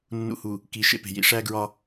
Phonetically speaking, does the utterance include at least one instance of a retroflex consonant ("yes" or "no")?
yes